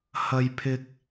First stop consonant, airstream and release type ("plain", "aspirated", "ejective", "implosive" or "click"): aspirated